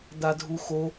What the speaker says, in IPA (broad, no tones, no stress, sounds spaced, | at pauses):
d̪ a dʱ u x o